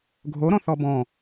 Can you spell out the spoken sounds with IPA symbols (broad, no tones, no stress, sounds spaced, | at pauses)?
ɡʱ o ɾ ɔ̃ θ ɔ b ɔ̃